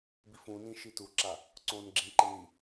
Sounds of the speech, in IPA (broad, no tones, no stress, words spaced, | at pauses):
bifũnĩ ʃituǁa | ǀõːnɡ͡ǁĩǃen i